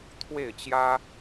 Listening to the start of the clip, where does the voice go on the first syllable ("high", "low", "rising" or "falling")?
falling